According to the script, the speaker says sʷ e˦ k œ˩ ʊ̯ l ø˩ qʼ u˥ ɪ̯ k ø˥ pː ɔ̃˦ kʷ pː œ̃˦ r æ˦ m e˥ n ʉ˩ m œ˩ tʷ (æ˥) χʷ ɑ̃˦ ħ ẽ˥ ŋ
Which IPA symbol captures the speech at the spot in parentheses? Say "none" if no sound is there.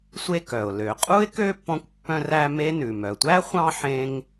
æ˥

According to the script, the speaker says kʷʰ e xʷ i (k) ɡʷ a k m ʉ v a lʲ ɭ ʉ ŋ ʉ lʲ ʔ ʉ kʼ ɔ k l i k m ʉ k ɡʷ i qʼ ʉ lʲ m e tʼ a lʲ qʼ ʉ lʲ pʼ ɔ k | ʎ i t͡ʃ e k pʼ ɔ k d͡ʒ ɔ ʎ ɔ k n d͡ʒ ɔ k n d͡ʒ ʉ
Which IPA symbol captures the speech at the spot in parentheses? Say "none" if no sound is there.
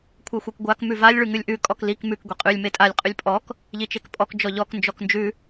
k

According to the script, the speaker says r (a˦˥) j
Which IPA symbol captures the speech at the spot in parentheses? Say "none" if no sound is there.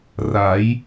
a˩˦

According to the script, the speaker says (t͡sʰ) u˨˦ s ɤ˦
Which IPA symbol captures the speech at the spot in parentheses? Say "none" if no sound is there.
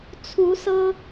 t͡sʰ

